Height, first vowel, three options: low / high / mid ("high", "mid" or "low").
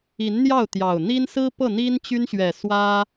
high